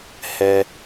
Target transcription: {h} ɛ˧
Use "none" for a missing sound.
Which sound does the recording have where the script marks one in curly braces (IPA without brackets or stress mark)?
h